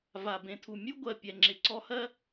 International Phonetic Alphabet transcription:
v a˩ b ẽ˩ tʰ u˩ mʲ u˥ ɡʷ ɜ˩ pʲ ɛ˩ ŋ͡ǁ ɪ˩ ǀ ɔ˦ h ɜ˥

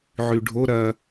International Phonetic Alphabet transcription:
ʕ y ɖʱ o ɾ ɐ

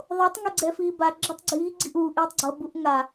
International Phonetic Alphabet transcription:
ðˤ o tˤ ŋ e ɡ͡ǀ ɛ f iː b a ɡ͡ǁ ʌ tˤ ɡ͡ǀ iː ɡ͡ǀ i ʔ uː ʔ iː tˤ ɡ͡ǀ ʌ b u ʔ ŋ a

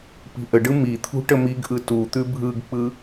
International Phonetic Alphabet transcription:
p i̤ ʔ ə ɖ ɯ m i t̪ʰ ṳ ʈ ə m i ɡ ʔ ɯ t u t̪ ʉ bʱ ɯ ɡ k͡p ɯ

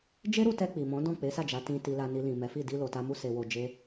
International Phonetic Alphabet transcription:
d͡ʒ e˦ ɾ u˧ t ɛ˧ k͡p i˨ m ɔ̃˨˦ d ɔ̃˦˨ k͡p e˨˦ s a˦˨ d͡ʒ a˨˦ t ĩ˧ t i˧ l a˧ n i˧ l ĩ˨ m ɛ˨˦ f i˦˨ d i˧ l o˨ t a˧ m u˦ s e˧ w o˧ d͡ʒ e˦

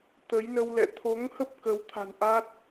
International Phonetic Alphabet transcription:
t̪ ə˨˦ j n ə˧ w l ɛ̰˧˨ t̪ʰ o˨˦ ŋ h ə˦˥ p̚ k ə˨˦ w t̪ʰ a̤˨˩ n ʔ a˦˥ t̚

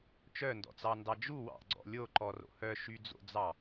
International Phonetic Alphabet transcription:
t͡ʃ œ n d ɔ̰ t͡s ɑ n d ɑ d͡ʒ u w ɑ̰ ɡ͡ǀ ɔ̰ lʲ o ǃ ɔ r o̰ h œ ʃ y d͡z o̰ d͡z ɑ

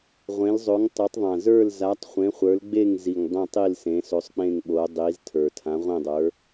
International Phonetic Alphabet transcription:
ʁʷ ẽ˨˦ l zˤ o˨˦ ŋ tˤ o˨˦ tˤ ðˤ ã˨˩ z ə˞˦˨ l z a˨˦ tˤ χʷ ẽ˨˦ χʷ ə˞˨˦ l ɡ͡b e˦˨ ŋ z i˨˩ ŋ dˤ ẽ˦˨ tˤ i˦˨ l s ẽ˨˦ s o˨˦ sˤ k͡p ẽ˦˨ ŋ ɓ o˨˦ dˤ i˨˦ z tʰ ə˞˨˩ tʰ ã˨˦ ʁʷ ẽ˦˨ dˤ ə˞˨˦

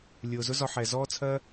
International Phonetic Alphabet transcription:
lʲ ʊː˨ z ʊ˦ z ɒ˧ ħ ɛ˨ z ɔː˦ t͡sʰ ɜ˦

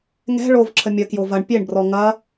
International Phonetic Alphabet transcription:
ŋ ɛ̤ ɭ o v ǁʰ ə mʲ ə k j o v ɐ ɳ pʲ e ɳ b r ɔ ŋ ɐ

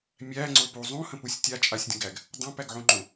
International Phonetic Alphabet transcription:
mʲ æ ŋ͡ǀ o p u zˤ ũ h ə̃ p u sʲ tʲ a t͡ʃʼ a sʲ dʲ ə̃ ɡ æ ɡ | dˤ õ p æ ɡ ʕ ũ ŋ͡ǃ õ

